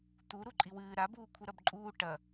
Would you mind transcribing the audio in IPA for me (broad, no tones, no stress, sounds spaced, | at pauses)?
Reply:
t̪ u ɾ u ǃʼ i w ɨː ɾ a b uː kʷʰ ɨ ɾ ɐ b ǃʼ uː ʈ ɐ